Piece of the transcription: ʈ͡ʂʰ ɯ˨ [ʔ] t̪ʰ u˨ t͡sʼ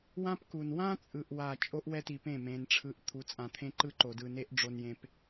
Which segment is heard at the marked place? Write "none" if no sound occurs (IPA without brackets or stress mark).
ʔ